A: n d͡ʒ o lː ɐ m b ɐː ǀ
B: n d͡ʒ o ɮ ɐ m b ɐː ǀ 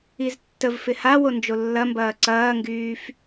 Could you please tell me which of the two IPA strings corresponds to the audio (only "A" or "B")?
A